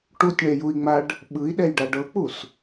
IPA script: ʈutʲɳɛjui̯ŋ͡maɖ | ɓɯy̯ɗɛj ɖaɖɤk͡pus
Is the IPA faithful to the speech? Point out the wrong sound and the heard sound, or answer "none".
y̯ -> i̯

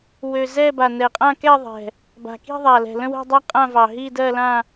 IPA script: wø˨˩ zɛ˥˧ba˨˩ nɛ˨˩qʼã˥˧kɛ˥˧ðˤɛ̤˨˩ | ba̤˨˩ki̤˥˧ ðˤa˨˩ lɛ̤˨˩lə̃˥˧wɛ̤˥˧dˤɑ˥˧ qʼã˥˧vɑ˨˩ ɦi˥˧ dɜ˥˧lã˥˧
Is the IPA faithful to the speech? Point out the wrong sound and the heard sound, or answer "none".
none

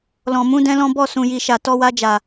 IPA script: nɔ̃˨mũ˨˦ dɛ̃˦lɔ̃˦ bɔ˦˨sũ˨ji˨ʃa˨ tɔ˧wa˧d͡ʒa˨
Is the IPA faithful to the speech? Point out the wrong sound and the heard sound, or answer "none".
n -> l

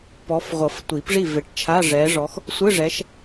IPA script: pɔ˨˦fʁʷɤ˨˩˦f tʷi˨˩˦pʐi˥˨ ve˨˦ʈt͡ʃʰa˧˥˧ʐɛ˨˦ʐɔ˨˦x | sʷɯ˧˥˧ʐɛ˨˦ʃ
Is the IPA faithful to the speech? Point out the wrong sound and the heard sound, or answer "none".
none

